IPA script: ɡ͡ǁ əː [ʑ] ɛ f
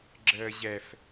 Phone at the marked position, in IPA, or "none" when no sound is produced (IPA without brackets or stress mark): ʑ